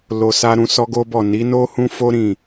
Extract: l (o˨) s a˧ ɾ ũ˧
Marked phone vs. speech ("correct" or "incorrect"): correct